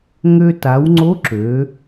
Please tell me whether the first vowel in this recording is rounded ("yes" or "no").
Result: yes